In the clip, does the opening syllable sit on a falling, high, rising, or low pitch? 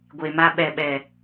low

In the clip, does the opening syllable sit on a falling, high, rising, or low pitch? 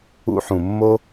high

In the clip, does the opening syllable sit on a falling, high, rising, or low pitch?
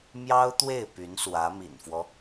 high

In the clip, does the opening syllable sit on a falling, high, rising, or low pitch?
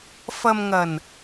low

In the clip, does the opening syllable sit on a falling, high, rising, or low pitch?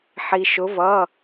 low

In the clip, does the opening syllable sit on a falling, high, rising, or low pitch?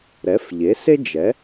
rising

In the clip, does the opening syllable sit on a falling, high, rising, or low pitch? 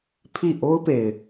falling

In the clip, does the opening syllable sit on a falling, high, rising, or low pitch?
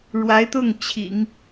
rising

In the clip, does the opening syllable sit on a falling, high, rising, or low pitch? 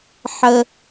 low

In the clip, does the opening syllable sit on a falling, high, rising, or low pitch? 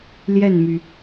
falling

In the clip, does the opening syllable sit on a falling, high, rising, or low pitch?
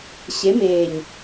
rising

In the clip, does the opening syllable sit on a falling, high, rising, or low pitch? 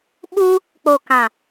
high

